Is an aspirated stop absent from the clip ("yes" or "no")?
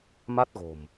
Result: yes